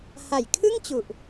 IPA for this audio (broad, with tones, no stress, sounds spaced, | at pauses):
h a˨˩ j kʰ ɯ˥˩ ŋ t͡ɕ u˨˩ ʔ